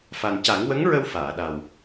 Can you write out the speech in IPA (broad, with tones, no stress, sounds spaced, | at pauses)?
f a˨˩ n c a˨˩˦ ŋ w ə˧˥ ŋ ɹ ə˧ w f aː˨˩˨ ɗ a˨˩ w